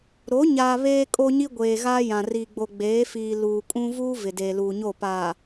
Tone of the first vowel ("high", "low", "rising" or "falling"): rising